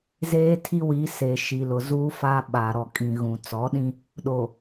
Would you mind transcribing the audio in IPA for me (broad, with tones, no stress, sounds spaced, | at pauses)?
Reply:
z eː˦ tʰ i˦ w i˨˦ s e˨ ʃ i˨ l ʊ˨ z uː˦ f a˦ ɓ a˨ ɾ ɔ˨ kʼ ĩ˨ ɣ ũ˨ t͡s ɔ˨˦ ɗ ĩ˦ | ɗ o˨